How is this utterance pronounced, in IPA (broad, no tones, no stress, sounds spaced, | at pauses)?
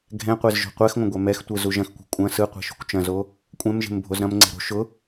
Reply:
ɡʱ ɛ̃ qʷ e z ʒ o̤ qʷ ɛ x ŋʷ ɐ̃ ɡʷ ɛ m ɛ x tʷ ɯ z u ʒ ɐ̃ x kʷ ɛ̤ kʷʼ ɐ̃ s ɯ qʷ ɛ̤ ʃ ṳ kʷ t͡ʃ ɐ̃ z o | kʷʼ ɛ̃ m ʒ e̤ m bʱ o z ɾ ɐ̃ m ŋ͡ǀ e̤ ɾ o̤ ʃ ʊ